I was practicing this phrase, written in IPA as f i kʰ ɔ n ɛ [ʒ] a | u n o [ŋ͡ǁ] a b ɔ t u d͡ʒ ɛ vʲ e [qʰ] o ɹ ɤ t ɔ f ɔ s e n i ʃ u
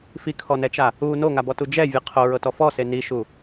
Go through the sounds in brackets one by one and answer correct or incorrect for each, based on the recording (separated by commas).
incorrect, incorrect, correct